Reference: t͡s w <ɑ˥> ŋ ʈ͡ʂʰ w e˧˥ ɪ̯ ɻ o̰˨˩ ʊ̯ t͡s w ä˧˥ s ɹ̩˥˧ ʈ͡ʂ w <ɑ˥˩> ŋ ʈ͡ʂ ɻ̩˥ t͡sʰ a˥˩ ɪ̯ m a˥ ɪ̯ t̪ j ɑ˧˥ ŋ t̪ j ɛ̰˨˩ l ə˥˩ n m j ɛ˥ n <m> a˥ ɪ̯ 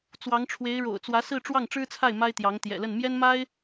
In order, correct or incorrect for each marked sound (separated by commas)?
incorrect, correct, correct